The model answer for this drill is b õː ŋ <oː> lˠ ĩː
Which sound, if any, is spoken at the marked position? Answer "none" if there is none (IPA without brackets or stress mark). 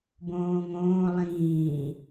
õː